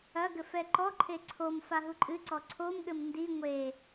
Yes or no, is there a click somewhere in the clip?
yes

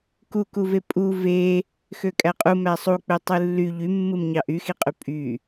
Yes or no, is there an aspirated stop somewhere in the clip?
no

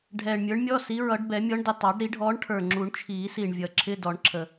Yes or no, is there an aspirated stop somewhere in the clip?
yes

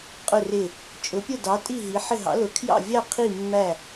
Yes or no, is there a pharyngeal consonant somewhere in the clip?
yes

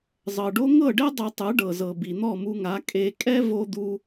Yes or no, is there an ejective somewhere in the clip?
yes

